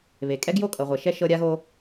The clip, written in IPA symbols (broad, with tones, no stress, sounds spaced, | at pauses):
β e˨ kʼ ɛ˦ ɡ j o˦ kʼ ɤ˨ ʁʷ ɛ˨ ʃ ɛ˦ ʃ ɤ˦ ɾʲ a˦ ɣ o˦